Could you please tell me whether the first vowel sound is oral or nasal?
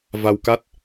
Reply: oral